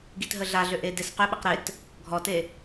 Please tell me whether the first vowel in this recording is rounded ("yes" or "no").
no